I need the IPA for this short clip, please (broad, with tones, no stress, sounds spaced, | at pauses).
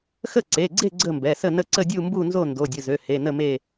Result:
x ə˥˨ ǀ e˩˧˩ ɡ͡ǀ e˥˨ ɡ͡ǀ ə˥˨ m b ɛ˩˧˩ s ə˥˨ n ə˥˨ ǀ ə˥˨ dʲ u˥˨ m b u˥˨ n z o˥˨ n d o˩˧˩ dʲ ə˩˧˩ z ø˩˧˩ h e˩˧˩ n ə˥˨ m e˥˨